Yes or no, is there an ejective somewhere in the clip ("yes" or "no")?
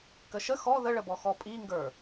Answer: yes